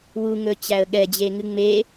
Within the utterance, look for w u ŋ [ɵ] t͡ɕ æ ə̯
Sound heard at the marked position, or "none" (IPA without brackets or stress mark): ɵ